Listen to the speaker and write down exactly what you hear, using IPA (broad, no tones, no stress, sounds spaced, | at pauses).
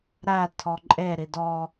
ɾ æ tʰ ɔ ǃʼ e ɾ i d ɔ